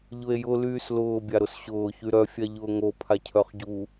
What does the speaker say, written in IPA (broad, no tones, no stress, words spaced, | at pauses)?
ʎʊe̯jʊ lyːslʊː bʲaɾʊsɕʊː çyɾœ fʲaʎʊːŋo pʰacʰœχɟu